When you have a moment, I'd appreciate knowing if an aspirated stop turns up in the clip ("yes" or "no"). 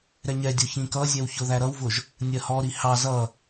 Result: no